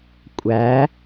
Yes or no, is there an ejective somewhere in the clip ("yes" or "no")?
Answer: yes